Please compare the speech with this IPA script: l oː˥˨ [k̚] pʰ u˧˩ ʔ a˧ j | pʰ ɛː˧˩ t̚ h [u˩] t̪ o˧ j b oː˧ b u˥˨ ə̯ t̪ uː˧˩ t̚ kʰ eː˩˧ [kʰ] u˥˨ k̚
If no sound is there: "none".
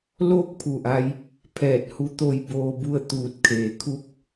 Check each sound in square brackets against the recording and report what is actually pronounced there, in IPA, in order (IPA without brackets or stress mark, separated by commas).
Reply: k̚, u˧˥, kʰ